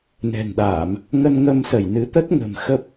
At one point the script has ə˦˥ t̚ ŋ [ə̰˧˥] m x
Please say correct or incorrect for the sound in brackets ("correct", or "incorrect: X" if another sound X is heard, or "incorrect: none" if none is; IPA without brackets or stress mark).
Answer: incorrect: ə̤˨˩